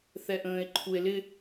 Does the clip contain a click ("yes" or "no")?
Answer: yes